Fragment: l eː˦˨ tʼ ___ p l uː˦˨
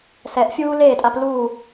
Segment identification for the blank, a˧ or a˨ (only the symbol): a˧